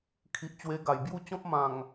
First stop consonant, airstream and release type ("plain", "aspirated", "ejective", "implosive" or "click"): aspirated